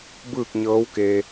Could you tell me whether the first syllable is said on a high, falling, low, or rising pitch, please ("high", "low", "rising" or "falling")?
falling